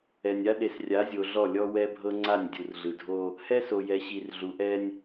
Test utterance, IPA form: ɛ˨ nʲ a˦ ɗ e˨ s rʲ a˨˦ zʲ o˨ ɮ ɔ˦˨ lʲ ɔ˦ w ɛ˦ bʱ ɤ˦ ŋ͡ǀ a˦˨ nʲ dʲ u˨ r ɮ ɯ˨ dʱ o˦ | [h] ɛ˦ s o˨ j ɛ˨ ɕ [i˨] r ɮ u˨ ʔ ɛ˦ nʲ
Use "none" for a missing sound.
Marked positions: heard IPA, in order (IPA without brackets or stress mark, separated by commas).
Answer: h, i˨